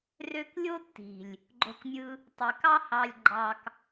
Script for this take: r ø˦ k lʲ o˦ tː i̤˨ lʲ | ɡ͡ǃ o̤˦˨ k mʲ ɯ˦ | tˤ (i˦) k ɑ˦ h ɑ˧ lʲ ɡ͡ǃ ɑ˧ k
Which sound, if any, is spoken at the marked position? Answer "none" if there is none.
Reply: i˨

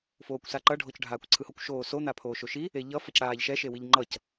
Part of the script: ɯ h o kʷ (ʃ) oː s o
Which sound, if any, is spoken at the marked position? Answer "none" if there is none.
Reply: ʃ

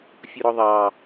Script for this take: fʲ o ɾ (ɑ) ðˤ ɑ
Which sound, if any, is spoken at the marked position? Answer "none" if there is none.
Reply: ɔ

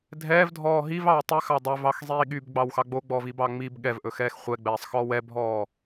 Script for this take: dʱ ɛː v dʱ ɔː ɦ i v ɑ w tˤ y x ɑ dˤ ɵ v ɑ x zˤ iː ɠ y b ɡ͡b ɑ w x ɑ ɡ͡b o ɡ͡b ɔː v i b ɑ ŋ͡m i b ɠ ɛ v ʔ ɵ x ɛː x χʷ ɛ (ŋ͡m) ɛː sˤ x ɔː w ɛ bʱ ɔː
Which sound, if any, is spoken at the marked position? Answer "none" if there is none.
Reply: ɡ͡b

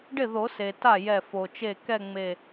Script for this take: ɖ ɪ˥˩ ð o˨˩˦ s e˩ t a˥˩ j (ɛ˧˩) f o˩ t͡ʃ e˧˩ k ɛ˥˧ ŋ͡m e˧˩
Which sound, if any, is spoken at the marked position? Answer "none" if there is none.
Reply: ɛ˧˩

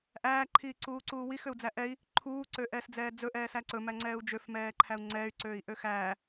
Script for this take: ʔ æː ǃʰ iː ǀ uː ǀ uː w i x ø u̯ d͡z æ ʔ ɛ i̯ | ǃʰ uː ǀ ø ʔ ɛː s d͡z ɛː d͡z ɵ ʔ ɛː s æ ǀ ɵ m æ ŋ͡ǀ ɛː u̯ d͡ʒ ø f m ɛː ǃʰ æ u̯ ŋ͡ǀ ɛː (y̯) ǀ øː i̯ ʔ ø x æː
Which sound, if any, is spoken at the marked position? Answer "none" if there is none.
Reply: y̯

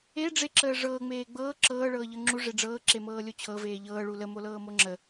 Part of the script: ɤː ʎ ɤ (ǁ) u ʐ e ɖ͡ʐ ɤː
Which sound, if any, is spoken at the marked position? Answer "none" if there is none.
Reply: ŋ͡ǁ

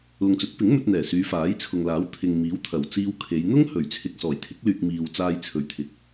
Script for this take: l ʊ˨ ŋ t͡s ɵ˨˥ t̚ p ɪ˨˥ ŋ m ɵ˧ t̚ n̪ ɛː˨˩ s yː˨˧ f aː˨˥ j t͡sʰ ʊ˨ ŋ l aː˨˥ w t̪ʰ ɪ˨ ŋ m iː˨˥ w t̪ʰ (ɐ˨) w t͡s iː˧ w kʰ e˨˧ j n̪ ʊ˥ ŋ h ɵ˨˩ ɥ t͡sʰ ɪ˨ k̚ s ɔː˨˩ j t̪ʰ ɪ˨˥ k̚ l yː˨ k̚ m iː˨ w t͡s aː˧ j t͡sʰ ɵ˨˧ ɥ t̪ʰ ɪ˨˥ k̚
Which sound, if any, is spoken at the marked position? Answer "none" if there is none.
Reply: ɐ˨˩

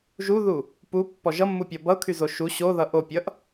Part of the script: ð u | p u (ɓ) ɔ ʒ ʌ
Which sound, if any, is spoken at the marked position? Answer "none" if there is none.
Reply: pː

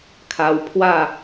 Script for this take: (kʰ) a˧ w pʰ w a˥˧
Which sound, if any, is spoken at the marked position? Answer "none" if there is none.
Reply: kʰ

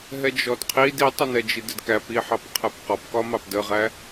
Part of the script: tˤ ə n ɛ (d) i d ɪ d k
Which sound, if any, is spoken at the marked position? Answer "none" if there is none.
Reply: d͡ʒ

